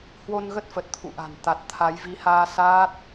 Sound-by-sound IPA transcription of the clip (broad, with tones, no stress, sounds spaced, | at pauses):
h w o˧ n ɣ ə˦˥ t̚ f ə˨˩ t̚ t̪ʰ ṵ˧˨ ʔ a̤˨˩ n t̪ a˨˩ t̚ t̪ʰ a˨˦ j v i˨˦ h aː˧ s aː˦˥ t̚